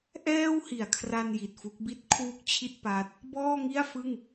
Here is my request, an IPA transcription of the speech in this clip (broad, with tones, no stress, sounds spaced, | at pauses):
ʔ ɛː˥˩ w h i˨˩ a̯ kʰ r a˧ n j i˨˩ t̚ f u˦˥ k̚ b i˥˩ t̚ kʰ w u˥˩ k̚ t͡ɕʰ i˥˩ t̚ p a˦˥ t̚ | b ɔː˥˩ ŋ i˥˩ a̯ f ɯ˥˩ ŋ